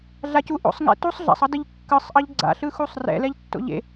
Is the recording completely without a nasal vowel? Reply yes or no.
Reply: yes